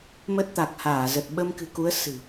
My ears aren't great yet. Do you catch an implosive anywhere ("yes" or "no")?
yes